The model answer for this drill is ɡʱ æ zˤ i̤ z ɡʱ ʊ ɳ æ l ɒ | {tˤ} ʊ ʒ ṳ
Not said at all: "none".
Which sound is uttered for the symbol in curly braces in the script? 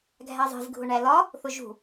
θ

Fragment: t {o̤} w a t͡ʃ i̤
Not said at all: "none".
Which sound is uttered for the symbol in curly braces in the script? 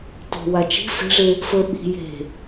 o̤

